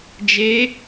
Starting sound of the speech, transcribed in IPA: d͡ʒ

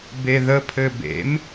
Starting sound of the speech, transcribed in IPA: b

